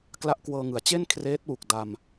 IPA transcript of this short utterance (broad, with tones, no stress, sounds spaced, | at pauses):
k l a˦˥ ʔ k w ɤː˧ ŋ ɯ˩˦ a̯ t͡ɕ e˥˩ n kʰ r eː˦˥ t̚ w u˨˩ k̚ d a˧ m